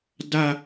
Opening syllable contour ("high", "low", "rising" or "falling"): high